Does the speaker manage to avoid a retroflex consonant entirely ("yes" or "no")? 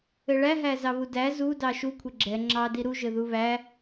no